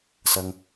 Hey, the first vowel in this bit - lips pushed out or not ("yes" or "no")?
no